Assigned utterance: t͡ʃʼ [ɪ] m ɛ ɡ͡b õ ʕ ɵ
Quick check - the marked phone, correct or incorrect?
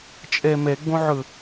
incorrect